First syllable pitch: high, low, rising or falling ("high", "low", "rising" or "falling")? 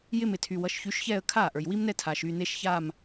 falling